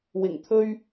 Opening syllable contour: low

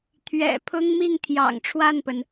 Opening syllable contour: low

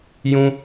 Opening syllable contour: high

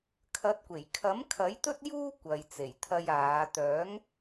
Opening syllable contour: rising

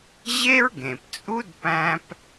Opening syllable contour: high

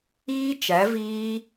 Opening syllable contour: high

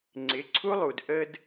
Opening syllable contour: rising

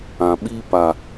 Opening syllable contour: low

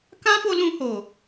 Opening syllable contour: high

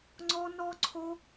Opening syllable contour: high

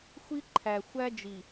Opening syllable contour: high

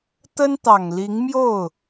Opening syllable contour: high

